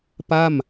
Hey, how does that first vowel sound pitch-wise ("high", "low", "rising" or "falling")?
falling